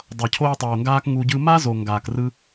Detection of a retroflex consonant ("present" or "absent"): absent